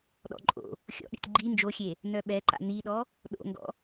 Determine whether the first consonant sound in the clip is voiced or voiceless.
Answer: voiced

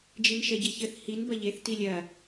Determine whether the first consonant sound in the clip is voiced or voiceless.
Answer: voiced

